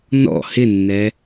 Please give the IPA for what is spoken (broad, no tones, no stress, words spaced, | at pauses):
nɔ̰ hɪnːɛ